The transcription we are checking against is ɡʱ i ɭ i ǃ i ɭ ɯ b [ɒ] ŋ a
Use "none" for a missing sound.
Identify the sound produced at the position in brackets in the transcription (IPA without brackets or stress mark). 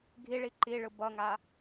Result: ʌ